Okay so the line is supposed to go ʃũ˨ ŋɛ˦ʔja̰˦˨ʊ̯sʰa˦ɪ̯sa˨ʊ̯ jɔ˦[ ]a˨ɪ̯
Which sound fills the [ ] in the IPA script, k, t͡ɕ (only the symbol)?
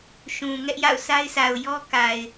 k